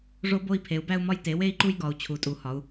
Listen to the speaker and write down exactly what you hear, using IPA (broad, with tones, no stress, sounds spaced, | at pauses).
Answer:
ʐ o˦ b o˦ i̯ pʰ e˩˧ u̯ b æ˦ u̯ m ɒ˦ j t e˩˧ w e˦ i̯ ǃ u˦ j ɡ ɒ˩˧ u̯ t͡ɕʰ u˩˧ tʼ u˩˧ h ɒ˩˧ u̯